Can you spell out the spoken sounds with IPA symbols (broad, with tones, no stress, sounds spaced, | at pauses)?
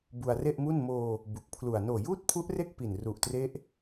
b u˧ a̯ r e˥˩ ʔ m u˥˩ n m oː˧ | b u˨˩ k̚ pʰ l u˨˩ a̯ n oː˨˩ j uː˥˩ t̚ pʰ u˦˥ ʔ r e˥˩ k̚ p i˨˩ n r u˨˩ ʔ t r e˦˥ ʔ